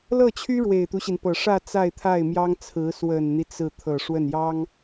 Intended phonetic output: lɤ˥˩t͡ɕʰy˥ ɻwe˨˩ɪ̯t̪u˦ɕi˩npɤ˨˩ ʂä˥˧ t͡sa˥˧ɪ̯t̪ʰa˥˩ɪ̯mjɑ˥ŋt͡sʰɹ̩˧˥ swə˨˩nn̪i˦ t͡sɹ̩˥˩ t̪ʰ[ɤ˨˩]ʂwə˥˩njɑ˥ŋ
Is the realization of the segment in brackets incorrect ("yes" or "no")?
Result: no